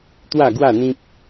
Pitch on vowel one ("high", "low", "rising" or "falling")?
falling